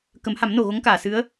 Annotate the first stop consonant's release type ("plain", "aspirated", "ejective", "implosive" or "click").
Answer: plain